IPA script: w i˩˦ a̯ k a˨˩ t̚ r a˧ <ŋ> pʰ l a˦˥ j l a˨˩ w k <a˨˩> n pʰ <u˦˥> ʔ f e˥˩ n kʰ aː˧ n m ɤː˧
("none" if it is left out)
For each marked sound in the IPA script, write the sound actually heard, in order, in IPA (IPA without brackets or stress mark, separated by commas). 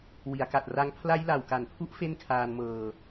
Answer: ŋ, a˨˩, u˦˥